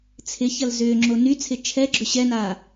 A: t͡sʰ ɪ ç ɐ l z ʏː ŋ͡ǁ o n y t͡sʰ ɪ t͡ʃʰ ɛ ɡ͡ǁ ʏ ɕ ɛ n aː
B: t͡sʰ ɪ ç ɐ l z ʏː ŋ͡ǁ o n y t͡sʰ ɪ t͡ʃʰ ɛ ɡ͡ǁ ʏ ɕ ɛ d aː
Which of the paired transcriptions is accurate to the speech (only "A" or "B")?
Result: A